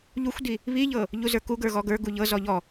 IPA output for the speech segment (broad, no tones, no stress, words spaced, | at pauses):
ʎuxʷdi | βiʎɤ | ʎuzə˞kuɡə˞ ɣɔɡə˞ ɡuʎɤ zɔʎɔ